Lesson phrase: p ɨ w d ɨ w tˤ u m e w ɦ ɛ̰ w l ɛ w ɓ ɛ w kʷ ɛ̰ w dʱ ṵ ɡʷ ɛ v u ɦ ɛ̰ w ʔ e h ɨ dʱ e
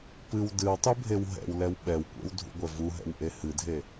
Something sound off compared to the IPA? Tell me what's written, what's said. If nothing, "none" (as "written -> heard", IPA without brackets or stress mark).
m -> bʱ